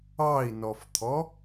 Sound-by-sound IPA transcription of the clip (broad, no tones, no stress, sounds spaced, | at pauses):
ɑ i̯ n ɔ f t̪ʰ ɔ